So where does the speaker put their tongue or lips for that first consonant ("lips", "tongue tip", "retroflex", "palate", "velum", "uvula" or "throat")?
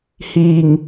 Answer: throat